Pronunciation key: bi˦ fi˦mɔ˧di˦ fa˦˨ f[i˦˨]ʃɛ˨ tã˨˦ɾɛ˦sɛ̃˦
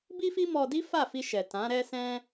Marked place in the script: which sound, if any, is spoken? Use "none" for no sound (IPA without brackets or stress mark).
i˧